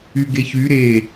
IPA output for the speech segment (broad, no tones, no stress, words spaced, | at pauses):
yɡeçy ɾe